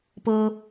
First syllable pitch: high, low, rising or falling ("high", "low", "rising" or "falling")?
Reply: high